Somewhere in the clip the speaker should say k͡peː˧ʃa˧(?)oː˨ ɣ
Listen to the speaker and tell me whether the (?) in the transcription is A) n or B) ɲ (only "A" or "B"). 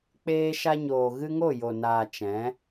B